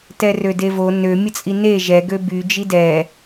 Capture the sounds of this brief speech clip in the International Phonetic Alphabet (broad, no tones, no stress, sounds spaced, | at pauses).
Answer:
t ɛ r ø d e v o n ø mʲ ə t͡sʼ i n e ʒ ɛ ɡ ø b y d͡ʒ i d ɛ